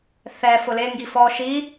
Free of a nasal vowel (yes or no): yes